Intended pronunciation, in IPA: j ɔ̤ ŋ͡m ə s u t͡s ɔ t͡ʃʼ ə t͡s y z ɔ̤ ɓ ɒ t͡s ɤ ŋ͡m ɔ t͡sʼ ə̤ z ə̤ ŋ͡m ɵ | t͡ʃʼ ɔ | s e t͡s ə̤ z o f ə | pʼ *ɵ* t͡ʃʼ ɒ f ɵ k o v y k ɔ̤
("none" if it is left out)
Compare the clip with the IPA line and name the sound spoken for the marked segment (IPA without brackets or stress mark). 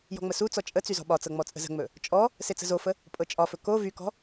ɤ